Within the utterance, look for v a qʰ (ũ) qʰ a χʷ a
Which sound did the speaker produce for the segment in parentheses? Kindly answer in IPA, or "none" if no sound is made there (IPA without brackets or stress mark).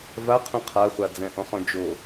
ũ